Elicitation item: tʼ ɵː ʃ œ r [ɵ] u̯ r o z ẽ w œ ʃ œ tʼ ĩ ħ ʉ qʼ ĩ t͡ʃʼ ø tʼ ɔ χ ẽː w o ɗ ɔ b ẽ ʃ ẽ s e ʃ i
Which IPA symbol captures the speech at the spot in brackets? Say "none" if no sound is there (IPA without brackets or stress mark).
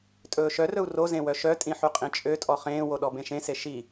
ɵ